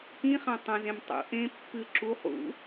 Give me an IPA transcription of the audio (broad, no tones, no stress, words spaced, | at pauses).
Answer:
kĩχã tˤɐ̃zẽm tˤṵ ʔẽ pːɨ ǁuχ ṵ